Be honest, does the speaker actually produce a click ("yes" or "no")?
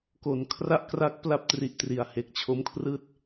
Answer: no